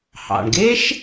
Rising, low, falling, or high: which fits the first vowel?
low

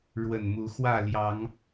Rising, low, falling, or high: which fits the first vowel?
low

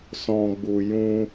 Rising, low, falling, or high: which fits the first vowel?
low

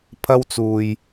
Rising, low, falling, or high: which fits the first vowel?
high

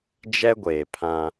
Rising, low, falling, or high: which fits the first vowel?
high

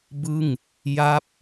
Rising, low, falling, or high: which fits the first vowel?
falling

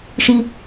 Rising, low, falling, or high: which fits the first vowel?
low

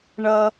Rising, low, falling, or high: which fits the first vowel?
low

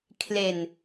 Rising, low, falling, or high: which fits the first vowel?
low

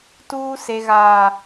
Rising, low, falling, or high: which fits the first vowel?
high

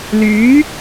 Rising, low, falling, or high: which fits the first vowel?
rising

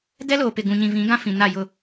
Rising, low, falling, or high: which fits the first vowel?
high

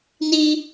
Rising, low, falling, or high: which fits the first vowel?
high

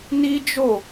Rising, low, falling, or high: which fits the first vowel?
high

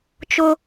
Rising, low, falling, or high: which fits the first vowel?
high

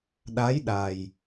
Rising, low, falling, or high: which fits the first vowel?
rising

